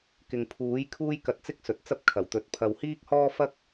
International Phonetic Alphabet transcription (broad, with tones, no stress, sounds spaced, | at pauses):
k ɪ˨ ŋ pʰ uː˨˥ j kʰ uː˥ j k ɐ˧ t̚ t͡s ɪ˥ k̚ s ɵ˨ t̚ t͡s ɐ˥ p̚ kʰ ɐ˨˩ w t̪ ɵ˨ t̚ pʰ ɐ˨ w h iː˥ k̚ h ɔː˥ f ɐ˥ k̚